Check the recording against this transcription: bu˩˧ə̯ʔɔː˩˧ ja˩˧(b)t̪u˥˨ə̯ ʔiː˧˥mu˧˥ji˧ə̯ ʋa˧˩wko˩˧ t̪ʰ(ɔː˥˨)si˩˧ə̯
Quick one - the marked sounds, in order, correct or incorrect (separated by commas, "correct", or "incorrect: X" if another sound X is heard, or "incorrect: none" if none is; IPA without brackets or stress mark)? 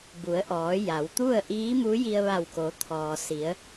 incorrect: w, incorrect: ɔː˩